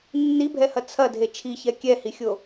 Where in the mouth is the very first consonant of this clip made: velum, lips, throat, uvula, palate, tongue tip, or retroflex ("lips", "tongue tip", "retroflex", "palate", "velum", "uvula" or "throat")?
tongue tip